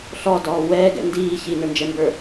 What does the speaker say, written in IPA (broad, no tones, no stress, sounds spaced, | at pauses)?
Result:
ɬ ɔ d ɔː w ɛː ɡ ɛ̰ n d iː ç i n ə˞ n d͡ʒ ɛ m b ə˞